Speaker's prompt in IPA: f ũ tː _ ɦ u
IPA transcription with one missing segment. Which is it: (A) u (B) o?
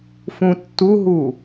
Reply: A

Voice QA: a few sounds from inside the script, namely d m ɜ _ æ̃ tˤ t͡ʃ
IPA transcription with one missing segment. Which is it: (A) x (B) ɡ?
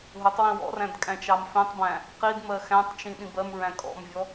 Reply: A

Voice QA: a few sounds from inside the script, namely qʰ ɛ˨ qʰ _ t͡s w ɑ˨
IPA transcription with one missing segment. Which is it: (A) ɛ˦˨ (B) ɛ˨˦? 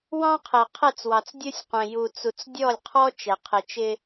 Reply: A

